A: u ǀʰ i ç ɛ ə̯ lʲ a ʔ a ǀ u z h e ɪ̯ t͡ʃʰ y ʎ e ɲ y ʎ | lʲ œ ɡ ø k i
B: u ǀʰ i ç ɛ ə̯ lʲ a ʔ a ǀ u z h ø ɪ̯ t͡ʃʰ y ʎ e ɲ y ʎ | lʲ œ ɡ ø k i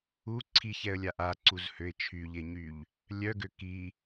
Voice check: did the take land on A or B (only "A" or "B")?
B